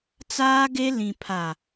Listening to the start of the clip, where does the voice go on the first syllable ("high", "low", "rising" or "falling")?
high